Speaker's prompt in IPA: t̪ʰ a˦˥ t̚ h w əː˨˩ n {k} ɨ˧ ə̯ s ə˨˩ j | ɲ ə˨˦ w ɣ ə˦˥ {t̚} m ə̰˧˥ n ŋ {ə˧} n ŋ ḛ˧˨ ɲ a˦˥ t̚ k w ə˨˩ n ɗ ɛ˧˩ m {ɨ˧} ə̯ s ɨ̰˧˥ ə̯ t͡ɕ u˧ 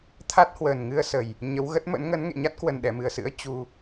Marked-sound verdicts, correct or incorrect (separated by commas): incorrect, correct, incorrect, incorrect